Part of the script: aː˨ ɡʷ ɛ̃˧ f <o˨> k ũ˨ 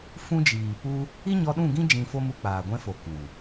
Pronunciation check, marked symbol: correct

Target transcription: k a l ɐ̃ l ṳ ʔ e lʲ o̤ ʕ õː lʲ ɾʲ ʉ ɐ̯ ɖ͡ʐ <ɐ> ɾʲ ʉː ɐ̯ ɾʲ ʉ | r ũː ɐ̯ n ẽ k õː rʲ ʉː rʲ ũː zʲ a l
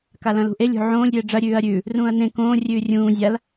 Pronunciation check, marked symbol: correct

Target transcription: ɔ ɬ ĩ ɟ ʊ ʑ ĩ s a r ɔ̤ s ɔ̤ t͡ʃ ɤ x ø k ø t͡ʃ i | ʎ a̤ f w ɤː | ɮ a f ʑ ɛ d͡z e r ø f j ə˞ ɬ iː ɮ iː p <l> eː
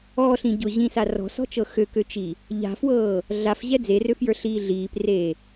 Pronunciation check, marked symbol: incorrect: r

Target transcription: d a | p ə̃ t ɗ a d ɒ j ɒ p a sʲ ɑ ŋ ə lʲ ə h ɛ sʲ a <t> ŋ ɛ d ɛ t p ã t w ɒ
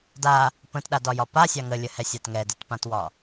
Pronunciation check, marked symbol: correct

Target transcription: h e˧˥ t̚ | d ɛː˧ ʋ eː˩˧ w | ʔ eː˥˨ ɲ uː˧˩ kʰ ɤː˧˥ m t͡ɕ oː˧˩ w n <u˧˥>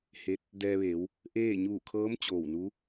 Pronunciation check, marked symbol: correct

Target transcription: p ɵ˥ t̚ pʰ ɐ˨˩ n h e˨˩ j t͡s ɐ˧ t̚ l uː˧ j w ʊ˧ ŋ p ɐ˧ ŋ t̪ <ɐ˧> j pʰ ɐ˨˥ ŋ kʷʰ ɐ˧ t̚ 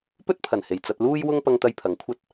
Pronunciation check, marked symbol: correct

